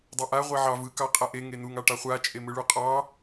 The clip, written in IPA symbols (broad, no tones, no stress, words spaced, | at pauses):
dˤaʔa ʁʷeʕɑv ɯ kɑqʼaʔe ŋenuŋ ɑʈɑχʷa t͡ʃʼemɯɭuqʼɑ